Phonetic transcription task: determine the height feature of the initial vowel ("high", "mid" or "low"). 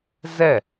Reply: mid